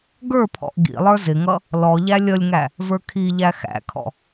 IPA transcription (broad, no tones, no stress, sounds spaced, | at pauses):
ɡ ə˞ pʰ ɔ̰ ʔ ɡ ḭ lˠ ə˞ z ɪ ŋ ʌ | l ɔ ʎ æ lʲ ʌ lʲ ŋ æ | v ə˞ kʰ i ʎ æ x æ̰ kʰ ɔ̰